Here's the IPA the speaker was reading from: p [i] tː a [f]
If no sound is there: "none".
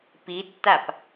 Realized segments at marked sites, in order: i, p

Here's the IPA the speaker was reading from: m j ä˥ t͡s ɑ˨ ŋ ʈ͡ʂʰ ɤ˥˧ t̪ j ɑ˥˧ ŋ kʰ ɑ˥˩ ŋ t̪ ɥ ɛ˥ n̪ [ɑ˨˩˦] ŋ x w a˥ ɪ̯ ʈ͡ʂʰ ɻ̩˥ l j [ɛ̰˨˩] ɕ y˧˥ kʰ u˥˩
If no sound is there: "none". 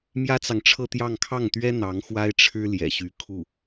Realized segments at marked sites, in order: ɑ˧˥, ɛ̰˨˩

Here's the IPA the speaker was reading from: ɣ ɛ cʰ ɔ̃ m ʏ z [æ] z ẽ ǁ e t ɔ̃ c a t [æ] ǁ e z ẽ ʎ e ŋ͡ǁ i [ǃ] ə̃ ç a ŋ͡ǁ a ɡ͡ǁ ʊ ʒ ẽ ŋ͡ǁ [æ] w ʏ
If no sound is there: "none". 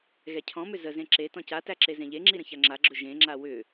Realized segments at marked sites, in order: ə, æ, ɾ, a

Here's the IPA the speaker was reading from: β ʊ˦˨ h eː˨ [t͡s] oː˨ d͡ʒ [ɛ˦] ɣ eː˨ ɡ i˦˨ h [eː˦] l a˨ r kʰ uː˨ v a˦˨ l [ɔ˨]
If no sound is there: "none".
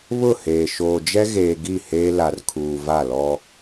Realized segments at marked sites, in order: ʃ, ɛ˦, eː˦, ɔ˦

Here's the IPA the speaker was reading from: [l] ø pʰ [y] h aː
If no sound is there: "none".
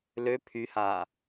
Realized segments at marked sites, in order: l, y

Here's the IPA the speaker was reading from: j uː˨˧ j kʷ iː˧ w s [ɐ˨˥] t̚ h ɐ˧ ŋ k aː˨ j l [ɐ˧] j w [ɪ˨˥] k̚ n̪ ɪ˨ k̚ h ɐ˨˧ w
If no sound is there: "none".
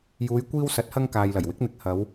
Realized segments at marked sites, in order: ɐ˨˥, ɐ˨˩, ɪ˨˥

